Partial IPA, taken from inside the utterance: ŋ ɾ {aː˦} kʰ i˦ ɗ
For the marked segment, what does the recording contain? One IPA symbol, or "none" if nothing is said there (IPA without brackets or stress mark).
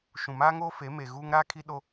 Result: aː˦